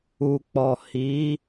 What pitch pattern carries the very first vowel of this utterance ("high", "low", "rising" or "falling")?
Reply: low